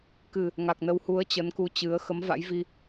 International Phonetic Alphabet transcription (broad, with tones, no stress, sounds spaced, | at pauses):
k ɨ˨˩ | ŋ a˨˩ k̚ n ə˧ w h u˨˦ ə̯ t͡ɕ ə˨˦ n k u˧ t͡ɕ ɨ˨˦ ə̯ x ə˨˦ m v a̰˧˥ j v i˧